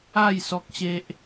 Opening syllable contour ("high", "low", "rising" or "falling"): falling